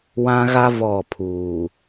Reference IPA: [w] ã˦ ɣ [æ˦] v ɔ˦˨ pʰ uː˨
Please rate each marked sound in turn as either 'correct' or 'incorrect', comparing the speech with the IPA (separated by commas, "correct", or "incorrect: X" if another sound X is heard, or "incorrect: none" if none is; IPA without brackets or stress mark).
correct, incorrect: a˦